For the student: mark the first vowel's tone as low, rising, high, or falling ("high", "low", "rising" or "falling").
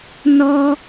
high